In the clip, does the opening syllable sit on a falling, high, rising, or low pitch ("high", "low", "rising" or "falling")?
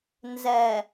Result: low